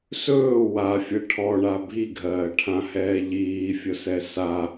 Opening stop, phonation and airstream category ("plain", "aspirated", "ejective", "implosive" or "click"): aspirated